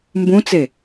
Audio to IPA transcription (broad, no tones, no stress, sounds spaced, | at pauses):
m b ũ t͡s e